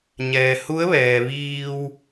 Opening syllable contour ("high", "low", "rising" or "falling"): low